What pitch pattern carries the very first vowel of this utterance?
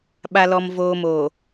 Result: low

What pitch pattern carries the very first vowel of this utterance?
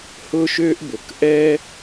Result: high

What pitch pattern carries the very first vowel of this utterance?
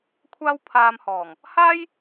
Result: high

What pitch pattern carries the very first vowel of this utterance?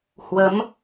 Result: rising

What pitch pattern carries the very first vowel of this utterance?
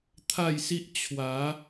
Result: falling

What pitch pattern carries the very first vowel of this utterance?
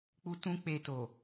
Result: high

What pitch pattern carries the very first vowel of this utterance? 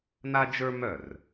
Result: high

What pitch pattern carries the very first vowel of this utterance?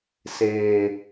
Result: low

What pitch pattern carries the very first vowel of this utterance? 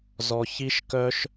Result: high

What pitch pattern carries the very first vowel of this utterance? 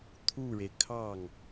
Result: falling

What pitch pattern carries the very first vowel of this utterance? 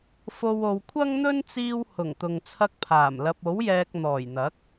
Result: low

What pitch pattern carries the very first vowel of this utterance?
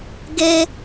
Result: high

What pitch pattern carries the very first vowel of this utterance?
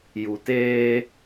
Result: low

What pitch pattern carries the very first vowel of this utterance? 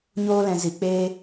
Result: high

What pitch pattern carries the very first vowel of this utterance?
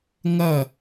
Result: falling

